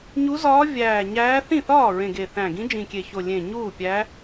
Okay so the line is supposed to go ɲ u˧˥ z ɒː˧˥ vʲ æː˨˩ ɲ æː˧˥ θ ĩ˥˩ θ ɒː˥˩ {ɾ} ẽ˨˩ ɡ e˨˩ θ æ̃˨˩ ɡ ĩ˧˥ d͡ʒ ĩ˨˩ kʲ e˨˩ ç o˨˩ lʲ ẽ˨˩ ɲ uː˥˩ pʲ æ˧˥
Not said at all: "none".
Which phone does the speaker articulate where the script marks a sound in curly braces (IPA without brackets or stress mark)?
ɹ